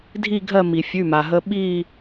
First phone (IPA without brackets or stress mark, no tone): dʱ